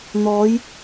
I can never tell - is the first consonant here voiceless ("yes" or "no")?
no